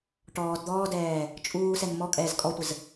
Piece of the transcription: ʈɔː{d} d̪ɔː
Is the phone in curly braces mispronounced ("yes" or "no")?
no